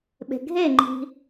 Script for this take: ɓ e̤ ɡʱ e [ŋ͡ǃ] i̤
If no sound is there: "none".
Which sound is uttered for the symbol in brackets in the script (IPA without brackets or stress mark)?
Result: ŋ͡ǃ